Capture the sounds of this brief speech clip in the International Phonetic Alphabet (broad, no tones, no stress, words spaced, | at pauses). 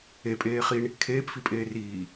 epʼeː χiɳ | kʰeːpfipʼeː riː